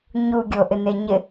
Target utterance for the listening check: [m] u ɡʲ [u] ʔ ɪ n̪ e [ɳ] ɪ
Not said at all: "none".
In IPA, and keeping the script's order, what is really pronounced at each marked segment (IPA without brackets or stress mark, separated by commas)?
ɲ, o, ɲ